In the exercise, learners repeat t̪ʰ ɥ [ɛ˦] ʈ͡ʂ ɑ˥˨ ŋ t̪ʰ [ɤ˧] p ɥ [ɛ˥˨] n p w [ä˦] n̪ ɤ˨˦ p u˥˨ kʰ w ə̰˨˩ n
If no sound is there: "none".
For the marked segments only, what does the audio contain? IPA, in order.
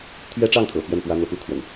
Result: ɛ˦, ɤ̰˨˩, ɛ˥˨, ä˦

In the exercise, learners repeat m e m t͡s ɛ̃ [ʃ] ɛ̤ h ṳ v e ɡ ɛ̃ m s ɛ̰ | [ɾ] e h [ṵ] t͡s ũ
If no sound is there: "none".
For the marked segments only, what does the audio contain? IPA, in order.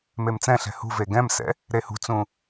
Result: ɬ, ɾ, ṳ

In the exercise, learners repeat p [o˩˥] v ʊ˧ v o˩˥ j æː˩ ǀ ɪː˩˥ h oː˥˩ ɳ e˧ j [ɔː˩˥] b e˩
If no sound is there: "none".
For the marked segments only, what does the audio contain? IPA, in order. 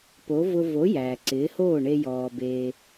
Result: o˩˥, ɔː˩

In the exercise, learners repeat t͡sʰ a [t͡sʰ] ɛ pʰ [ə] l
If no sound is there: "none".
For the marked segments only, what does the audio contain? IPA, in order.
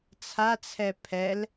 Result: t͡sʰ, ɛ

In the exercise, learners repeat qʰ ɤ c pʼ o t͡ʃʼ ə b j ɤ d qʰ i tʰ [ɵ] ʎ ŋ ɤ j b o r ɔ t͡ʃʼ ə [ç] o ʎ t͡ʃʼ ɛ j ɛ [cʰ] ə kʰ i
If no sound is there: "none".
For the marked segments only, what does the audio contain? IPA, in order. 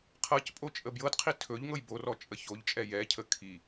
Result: ɵ, ç, cʰ

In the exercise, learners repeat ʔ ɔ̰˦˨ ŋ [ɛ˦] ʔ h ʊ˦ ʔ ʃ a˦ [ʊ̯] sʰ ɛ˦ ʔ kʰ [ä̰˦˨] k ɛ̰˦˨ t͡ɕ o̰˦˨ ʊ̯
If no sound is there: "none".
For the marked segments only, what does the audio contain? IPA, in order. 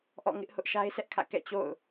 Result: ɪ˦, ɪ̯, ä̰˦˨

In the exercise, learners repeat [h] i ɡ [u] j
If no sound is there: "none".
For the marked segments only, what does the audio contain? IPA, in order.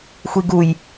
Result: xʷ, u

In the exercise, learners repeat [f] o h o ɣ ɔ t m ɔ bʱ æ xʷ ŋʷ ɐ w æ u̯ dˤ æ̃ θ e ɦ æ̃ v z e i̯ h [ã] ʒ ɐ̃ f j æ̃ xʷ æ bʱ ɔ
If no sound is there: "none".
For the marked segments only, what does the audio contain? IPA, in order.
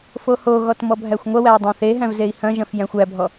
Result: f, ɐ̃

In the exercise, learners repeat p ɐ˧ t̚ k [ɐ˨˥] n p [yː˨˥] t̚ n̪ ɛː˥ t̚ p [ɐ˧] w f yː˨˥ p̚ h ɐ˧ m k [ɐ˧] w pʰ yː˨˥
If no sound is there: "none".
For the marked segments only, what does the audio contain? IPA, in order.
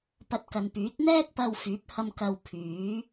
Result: ɐ˨, yː˨˥, ɐ˧, ɐ˧

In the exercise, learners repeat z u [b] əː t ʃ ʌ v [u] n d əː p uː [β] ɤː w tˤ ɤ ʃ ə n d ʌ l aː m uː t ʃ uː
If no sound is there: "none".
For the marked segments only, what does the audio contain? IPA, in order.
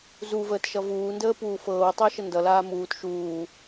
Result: v, uː, f

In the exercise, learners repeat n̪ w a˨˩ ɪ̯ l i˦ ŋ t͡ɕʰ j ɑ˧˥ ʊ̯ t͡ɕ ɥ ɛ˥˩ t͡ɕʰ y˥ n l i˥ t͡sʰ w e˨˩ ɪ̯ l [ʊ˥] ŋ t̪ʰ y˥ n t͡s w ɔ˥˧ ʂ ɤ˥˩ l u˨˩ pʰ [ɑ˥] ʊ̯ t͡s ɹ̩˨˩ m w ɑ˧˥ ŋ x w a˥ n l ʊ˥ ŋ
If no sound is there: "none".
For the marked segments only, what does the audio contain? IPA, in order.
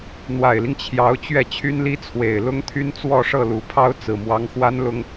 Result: ʊ˥, ɑ˥

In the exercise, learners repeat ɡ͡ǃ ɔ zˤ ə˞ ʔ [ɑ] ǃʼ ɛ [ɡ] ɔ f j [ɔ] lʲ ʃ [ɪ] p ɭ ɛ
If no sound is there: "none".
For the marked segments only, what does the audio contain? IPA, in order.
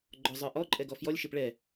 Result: ɔ, ɡ, ɔ, ɪ

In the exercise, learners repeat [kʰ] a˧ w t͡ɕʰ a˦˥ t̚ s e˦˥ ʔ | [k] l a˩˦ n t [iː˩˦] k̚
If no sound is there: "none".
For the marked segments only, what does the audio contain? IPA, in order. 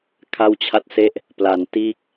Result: kʰ, p, iː˦˥

